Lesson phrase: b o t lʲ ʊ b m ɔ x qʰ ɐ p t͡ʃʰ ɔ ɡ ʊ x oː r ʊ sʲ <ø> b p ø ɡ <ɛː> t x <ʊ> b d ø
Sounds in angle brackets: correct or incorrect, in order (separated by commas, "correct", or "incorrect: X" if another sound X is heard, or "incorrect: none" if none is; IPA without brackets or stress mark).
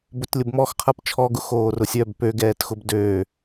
incorrect: œ, correct, correct